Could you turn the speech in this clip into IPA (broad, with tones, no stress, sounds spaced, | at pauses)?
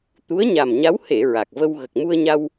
t̪ u˧˥ ə̯ ɲ a˨˩ m ɲ a˧˥ w h e˨˩˨ ɹ a˨˩ k̚ v ə˧ w ɣ ə˨˩ k̚ m u˧ ə̯ ɲ a˧ w